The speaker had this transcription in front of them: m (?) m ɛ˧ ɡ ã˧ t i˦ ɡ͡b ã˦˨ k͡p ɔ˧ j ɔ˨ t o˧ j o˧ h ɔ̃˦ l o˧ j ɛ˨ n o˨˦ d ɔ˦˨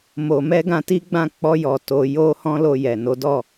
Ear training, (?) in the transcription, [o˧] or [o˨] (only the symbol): o˨